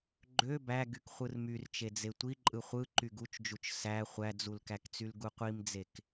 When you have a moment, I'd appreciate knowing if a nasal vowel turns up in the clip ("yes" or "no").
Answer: no